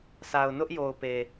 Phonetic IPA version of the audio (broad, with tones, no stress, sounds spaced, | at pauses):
s a˨ ʊ̯ n ʊ˦ ʔ j o˨ ʊ̯ p e˨